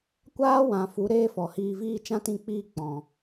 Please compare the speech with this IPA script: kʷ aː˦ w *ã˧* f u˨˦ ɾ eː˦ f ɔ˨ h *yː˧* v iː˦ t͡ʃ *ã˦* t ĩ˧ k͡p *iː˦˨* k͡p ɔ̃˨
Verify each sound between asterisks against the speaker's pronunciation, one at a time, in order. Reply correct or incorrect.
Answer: incorrect: ã˨, incorrect: iː˧, correct, correct

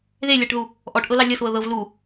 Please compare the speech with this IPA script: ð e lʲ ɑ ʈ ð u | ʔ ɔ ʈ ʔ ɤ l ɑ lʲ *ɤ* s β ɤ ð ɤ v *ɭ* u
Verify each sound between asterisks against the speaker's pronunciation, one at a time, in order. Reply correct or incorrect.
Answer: correct, incorrect: l

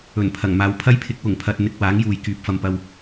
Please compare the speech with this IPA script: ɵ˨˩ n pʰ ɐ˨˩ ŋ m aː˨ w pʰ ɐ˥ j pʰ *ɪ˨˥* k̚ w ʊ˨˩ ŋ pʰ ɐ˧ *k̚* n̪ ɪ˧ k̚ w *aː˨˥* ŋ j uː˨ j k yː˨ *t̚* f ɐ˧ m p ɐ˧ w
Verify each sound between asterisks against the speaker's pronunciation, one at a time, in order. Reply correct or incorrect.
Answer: correct, incorrect: t̚, correct, incorrect: p̚

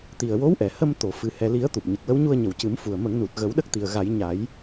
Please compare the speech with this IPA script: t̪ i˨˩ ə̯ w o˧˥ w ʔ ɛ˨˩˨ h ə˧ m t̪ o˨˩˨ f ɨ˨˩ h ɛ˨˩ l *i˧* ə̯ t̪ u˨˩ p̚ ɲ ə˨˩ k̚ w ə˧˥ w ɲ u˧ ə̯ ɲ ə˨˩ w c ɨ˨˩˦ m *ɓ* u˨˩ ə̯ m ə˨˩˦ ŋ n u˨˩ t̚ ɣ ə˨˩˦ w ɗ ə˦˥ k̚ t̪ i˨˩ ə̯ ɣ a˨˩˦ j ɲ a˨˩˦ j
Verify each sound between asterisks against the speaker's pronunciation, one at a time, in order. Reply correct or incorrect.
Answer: incorrect: i˨˩˦, incorrect: f

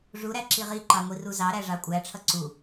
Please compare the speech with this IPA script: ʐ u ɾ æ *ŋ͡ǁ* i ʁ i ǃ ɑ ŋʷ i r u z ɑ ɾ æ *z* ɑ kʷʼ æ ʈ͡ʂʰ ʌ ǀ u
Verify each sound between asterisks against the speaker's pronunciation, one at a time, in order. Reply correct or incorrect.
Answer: incorrect: ǁ, incorrect: ʐ

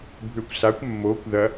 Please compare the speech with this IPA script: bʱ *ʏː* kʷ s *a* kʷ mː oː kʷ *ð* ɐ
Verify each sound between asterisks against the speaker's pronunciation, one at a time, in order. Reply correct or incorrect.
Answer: correct, correct, correct

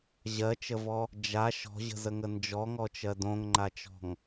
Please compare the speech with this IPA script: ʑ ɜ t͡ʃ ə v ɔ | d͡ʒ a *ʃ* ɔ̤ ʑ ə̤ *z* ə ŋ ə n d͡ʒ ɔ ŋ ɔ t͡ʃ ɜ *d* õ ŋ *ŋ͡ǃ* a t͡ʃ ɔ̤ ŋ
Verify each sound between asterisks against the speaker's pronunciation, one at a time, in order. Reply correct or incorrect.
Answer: correct, correct, correct, correct

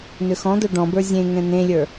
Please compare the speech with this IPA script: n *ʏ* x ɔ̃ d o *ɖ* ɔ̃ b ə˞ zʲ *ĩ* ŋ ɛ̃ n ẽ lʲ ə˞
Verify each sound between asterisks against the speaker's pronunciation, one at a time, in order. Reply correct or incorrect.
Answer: correct, correct, incorrect: ẽ

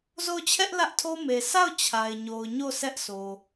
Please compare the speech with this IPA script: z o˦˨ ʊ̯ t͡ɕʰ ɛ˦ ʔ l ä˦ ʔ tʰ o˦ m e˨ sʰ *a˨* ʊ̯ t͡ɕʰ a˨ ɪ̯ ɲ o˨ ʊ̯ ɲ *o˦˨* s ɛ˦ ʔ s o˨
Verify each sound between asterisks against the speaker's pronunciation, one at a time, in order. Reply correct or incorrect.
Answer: incorrect: a˦˨, correct

